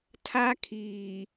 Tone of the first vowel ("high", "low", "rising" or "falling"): high